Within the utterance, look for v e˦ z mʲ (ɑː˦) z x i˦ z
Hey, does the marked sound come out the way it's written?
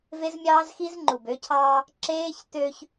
yes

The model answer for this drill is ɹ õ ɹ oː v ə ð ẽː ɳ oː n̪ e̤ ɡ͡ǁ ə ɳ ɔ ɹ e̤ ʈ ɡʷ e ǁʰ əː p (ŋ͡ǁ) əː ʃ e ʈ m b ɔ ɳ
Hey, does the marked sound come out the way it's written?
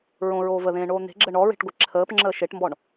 yes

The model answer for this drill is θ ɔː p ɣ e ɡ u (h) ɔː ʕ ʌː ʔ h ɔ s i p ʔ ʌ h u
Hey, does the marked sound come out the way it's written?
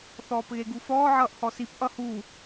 no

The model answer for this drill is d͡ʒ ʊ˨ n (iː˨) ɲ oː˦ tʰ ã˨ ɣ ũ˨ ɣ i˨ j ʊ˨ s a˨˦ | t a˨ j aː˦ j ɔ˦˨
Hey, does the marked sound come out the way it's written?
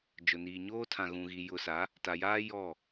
yes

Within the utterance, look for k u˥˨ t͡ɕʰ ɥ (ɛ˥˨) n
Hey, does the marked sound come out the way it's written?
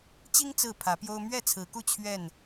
yes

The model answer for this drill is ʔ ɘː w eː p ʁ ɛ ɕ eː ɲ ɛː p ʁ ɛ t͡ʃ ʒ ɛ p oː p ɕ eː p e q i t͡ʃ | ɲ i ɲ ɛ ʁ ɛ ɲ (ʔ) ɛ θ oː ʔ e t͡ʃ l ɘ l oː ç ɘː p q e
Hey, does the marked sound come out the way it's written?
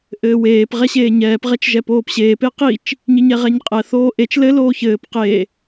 no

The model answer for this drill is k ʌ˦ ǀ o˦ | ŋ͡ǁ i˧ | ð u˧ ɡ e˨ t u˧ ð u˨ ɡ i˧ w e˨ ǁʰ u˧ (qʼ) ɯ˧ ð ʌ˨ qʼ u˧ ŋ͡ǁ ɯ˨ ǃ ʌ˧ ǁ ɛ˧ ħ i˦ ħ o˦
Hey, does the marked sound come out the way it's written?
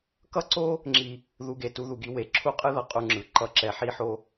yes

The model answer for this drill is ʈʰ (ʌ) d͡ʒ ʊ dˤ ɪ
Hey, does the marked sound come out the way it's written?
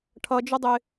yes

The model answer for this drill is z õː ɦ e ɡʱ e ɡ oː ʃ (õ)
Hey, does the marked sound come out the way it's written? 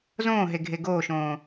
no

